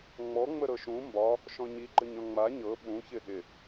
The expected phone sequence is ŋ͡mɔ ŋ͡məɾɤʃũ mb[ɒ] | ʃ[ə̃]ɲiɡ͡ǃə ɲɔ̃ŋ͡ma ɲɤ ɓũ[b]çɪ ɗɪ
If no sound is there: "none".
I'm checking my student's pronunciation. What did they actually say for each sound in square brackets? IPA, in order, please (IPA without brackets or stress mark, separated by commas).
ɒ, ɔ̃, none